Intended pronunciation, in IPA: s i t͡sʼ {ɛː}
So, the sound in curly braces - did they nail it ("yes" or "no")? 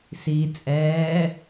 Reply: yes